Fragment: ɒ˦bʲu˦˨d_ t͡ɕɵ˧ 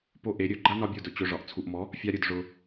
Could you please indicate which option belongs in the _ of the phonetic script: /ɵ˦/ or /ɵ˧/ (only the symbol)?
ɵ˧